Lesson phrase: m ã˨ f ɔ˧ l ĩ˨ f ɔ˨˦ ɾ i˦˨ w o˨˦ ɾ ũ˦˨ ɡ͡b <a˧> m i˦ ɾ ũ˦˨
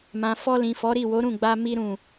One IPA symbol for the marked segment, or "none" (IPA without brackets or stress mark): a˧